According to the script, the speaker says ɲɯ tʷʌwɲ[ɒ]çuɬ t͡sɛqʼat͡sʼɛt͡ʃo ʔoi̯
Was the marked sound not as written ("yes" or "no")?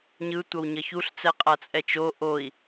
yes